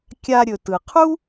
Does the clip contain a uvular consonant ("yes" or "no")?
yes